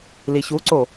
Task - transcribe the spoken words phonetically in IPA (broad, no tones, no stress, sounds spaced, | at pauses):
l i ç u ǀ o